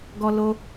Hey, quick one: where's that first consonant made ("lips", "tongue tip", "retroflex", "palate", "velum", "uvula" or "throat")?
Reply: velum